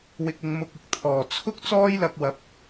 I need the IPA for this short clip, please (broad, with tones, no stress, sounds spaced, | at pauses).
w ɪ˧ k̚ ɪ˧ ŋ m ʊ˧ k̚ ɪ˧ k̚ t̪ʰ ɔː˨˩ t͡sʰ ʊ˥ k̚ t͡s ɔː˥ j l ɐ˧ k̚ w ɐ˨˥ p̚